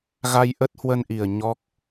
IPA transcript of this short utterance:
ɣa˧jʔə˦˥t̚hwə˧nʔi˨˩ə̯ ɲɔ˦˥k̚

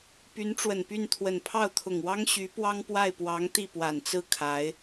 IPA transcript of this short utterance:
py˧˥nʈ͡ʂwə˨˩npy˥˩n t̪ʰwə˨˩npʰɑ˥˩ʊ̯t̪ʰʊ˨˩ŋwɑ˥ŋ ɕy˧˥pwɑ˥ŋpwa˥˩ɪ̯pwɑ˧˥ŋ t̪i˥˩pwa˨˩nt͡sɹ̩˥˩ kʰa˧˥ɪ̯

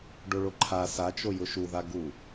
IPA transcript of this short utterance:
ɖoɭoǃʰa sat͡ʃo jʊʃuða ɡu

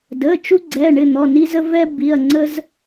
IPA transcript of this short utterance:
də˩˧˩ t͡ʃu˦ɡ͡ǀɛ˩˧˩ɳɪ˩˧˩ n̪ɔ˩˧˩ni˦zə˦ vɛ˦bi˩˧˩ɐ̯ŋ͡ǀə˦z

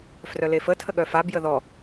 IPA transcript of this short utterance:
frœlefə tʰəɠœfa bjəðɔ

